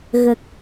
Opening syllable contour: low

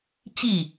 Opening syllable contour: falling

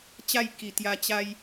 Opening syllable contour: falling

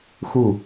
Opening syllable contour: falling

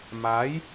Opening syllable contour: rising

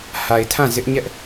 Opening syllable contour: low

